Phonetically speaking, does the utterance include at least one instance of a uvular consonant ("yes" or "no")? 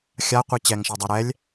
yes